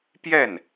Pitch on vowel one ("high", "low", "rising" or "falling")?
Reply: falling